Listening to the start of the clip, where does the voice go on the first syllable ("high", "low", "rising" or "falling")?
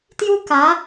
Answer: high